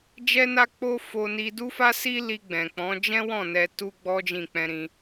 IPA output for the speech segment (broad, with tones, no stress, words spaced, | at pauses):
d͡ʒɛ˧na˧ k͡po˦ fo˧ni˧du˦fa˦ si˦li˧ɡ͡bɛ̃˨k͡pɔ̃˨˦ d͡ʒɛ̃˦wɔ̃˦˨ nɛ˧tu˦ ɡ͡bɔ˦d͡ʒĩ˦˨k͡pɛ̃˧ ɾĩ˦